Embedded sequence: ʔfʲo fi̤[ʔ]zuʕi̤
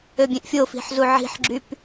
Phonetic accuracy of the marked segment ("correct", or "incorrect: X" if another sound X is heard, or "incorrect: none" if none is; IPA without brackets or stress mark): incorrect: ħ